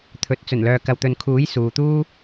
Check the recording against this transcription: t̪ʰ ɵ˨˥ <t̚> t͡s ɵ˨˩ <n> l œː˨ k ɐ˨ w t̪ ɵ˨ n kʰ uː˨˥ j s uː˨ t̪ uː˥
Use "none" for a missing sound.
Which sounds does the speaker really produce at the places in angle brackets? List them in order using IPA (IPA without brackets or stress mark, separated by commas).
t̚, n